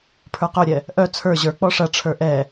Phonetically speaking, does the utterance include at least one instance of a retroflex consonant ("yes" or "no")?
yes